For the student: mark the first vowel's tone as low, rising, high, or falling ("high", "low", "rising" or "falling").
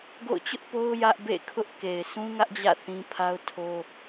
falling